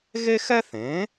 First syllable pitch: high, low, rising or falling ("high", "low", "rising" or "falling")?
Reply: high